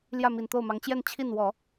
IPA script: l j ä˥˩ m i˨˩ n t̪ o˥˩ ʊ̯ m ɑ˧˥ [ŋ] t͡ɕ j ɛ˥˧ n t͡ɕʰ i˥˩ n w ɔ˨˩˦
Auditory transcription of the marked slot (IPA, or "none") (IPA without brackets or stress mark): ŋ